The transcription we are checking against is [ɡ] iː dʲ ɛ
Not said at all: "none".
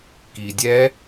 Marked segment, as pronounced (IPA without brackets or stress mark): k